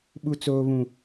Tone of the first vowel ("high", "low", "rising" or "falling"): high